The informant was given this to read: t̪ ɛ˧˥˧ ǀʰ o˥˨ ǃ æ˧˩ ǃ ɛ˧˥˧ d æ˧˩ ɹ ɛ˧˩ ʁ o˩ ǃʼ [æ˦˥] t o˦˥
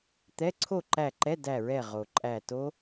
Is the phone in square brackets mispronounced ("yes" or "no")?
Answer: yes